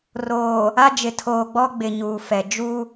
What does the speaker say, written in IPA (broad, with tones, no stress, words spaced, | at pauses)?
roː˨ | a˦d͡ʒɪ˨ tʰoː˨ɡ͡bɔ˦ɡ͡bɪ˨ ɲuː˨fɛ˨ d͡ʒu˦